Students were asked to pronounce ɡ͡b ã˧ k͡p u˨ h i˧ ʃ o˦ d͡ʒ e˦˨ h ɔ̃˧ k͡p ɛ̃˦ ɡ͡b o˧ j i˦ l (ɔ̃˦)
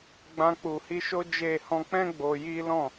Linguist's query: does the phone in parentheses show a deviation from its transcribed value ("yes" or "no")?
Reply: yes